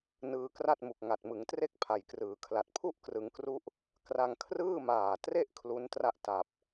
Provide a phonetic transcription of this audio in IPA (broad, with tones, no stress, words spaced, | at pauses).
nɯː˧kra˥˩t̚ mu˨˩k̚ŋa˨˩t̚mɯ˩˦ŋtre˥˩k̚ pʰa˨˩jkrɯː˩˦kʰla˨˩t̚ pʰu˥˩ʔkrɯ˩˦ŋkru˦˥ʔ | kra˧ŋkʰrɯː˥˩maː˨˩tre˥˩ʔ kʰlu˦˥ntra˥˩ʔ ta˨˩p̚